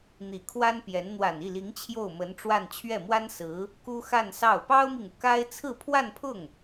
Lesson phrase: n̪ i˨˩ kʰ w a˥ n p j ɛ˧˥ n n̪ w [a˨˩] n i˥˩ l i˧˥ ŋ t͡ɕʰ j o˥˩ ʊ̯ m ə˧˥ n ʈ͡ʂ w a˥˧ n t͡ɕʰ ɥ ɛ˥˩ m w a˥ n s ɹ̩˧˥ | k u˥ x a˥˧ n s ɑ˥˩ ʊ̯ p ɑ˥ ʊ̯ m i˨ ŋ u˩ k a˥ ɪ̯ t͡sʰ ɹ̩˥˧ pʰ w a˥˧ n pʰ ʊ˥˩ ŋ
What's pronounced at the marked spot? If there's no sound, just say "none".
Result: a˨˩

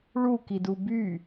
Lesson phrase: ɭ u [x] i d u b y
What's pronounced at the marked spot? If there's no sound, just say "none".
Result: k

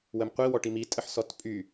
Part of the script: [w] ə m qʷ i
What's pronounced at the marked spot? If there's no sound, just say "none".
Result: w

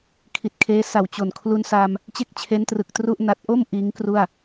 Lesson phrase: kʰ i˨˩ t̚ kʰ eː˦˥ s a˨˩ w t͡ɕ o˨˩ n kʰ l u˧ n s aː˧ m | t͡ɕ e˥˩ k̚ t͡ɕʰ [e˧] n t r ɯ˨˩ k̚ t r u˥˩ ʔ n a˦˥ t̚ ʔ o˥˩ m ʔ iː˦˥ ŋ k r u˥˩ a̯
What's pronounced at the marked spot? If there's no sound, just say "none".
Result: e˦˥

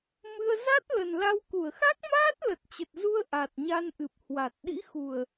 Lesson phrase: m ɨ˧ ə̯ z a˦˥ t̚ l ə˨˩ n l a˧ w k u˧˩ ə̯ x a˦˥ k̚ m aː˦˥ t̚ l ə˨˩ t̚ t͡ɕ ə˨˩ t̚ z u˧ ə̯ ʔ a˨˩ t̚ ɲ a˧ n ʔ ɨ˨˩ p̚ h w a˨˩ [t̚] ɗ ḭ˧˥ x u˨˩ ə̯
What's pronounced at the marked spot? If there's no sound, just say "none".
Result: t̚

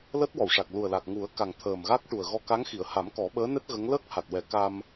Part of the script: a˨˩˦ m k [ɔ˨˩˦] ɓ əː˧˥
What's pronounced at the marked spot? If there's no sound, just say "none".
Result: ɔ˨˩˦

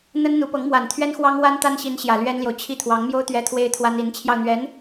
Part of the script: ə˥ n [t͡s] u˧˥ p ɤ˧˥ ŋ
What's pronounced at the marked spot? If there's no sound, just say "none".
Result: n̪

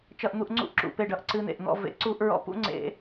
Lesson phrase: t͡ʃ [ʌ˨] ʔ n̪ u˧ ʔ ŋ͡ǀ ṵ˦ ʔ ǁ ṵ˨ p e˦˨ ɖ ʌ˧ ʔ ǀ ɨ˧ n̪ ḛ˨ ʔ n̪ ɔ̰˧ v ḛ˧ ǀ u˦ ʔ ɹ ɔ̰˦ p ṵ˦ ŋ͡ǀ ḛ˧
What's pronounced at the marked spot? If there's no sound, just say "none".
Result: ʌ˧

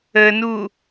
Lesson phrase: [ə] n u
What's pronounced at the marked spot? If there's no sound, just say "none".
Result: ə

